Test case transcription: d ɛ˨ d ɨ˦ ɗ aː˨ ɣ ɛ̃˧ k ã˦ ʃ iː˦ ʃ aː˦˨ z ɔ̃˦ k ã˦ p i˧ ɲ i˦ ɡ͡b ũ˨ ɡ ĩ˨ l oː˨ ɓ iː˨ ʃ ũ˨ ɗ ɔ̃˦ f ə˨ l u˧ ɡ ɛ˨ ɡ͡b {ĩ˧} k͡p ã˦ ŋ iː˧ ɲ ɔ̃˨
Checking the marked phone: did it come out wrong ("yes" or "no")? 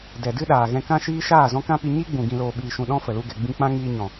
no